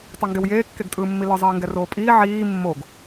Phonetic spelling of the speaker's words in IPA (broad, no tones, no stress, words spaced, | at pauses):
tˤɯŋɡewjeː kːeɡtʼɯːmːilɯ zˤiːŋɡɛroːpʼiː ʕiː mːoɡ